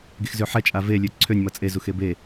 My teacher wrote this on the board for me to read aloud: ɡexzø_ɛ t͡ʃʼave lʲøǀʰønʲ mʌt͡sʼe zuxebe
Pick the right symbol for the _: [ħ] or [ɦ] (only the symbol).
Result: ħ